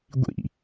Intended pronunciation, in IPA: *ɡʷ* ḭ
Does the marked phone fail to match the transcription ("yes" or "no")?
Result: no